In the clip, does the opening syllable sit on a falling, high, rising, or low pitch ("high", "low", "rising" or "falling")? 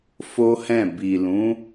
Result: high